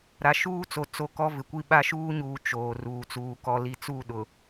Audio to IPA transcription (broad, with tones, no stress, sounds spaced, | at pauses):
ɾ a˨ ʃ uː˦ t͡s o˨ t͡s o˦ k ɔ˦ v ɪ˨ kʷ i˦ ɓ a˦ ʃ uː˦ ɲ uː˨ t͡ʃ oː˨ r uː˨ t͡s uː˨ k ɔ˨ l i˨ t͡s u˦˨ ɗ ʊ˨